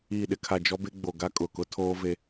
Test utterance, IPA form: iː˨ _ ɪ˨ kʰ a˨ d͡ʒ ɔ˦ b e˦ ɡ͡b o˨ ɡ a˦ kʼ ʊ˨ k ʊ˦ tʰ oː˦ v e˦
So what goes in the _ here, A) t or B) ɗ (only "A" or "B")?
B